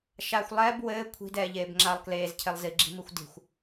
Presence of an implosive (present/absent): absent